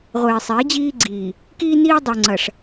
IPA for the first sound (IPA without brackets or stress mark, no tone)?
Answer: ʁʷ